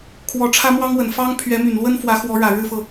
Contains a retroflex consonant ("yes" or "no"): yes